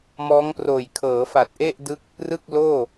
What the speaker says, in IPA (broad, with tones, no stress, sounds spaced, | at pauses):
m ɔː˦˥ ŋ p r oː˨˩ j kʰ ɤː˩˦ f a˨˩ t̚ ʔ e˥˩ ʔ d ɯ˦˥ k̚ | r ɯ˥˩ k̚ l oː˥˩